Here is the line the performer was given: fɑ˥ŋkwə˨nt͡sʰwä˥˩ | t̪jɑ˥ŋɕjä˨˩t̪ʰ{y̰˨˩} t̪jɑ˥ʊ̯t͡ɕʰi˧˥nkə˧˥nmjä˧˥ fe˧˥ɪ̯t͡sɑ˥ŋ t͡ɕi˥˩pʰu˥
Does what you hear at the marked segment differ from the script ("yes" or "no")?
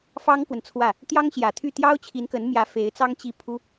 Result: yes